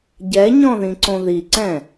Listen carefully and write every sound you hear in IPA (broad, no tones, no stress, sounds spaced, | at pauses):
ɟ ɛ ɲ ɔ̃ ð ĩ ǀ õ ð i ǀ ɛ̃